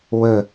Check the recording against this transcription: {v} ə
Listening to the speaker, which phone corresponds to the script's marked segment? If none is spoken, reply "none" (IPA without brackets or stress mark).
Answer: w